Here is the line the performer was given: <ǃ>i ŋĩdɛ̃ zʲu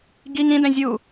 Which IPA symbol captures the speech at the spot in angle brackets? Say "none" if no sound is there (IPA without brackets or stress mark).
ɡ